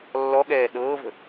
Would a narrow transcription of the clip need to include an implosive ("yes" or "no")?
yes